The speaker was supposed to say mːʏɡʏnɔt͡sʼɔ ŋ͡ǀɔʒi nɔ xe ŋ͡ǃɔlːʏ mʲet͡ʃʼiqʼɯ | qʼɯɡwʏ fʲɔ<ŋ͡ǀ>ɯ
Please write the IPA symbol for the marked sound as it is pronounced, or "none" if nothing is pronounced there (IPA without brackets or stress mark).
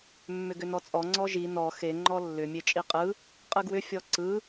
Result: ǀ